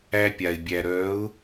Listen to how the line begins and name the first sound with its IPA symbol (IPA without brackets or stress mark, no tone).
æ